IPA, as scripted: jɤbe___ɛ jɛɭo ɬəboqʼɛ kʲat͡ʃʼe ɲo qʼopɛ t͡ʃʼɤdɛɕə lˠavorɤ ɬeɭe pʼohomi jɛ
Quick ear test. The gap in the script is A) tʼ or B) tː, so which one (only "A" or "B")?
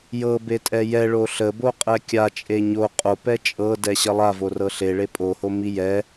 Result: A